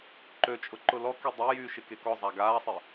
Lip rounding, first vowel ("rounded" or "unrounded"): rounded